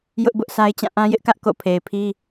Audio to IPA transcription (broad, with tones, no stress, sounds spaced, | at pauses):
j ʊ˦ ʔ b ʊ˦ ʔ s a˦ ɪ̯ t͡ɕ ã˦˨ ʔ ã˦ j ɪ˦ ʔ k ä˦ ʔ k o̰˦˨ pʰ e˨ ɪ̯ pʰ i˦